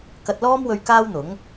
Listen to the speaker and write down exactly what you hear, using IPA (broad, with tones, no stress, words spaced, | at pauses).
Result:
kɐ˧t̚lɔː˥mwɵ˧ɥ kaː˥wn̪ʊ˨˥ŋ